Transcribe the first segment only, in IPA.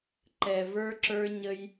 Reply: ǃ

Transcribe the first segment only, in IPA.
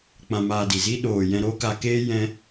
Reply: k͡p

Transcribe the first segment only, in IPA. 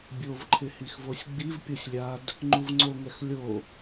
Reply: bʲ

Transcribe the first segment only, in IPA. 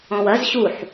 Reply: ɔ̃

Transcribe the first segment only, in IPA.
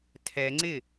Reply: tʰ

